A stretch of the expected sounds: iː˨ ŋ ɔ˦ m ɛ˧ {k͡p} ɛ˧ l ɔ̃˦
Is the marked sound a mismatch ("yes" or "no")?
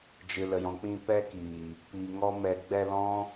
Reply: yes